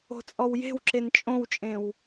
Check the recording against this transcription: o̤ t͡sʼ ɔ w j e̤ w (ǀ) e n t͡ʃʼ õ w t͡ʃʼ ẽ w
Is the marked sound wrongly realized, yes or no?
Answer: yes